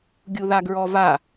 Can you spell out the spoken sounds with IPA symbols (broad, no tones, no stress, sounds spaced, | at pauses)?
ɡʲ u ð a ɡ ɹ ɔ v a